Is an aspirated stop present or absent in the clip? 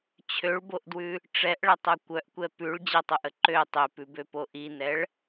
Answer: present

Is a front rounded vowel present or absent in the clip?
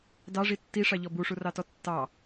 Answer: absent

